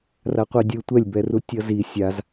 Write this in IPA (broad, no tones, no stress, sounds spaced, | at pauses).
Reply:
r a qʷ i dʲ ɯ tʷ ɛ lʲ b ɛ r u tʲ ʌ z i sʲ a z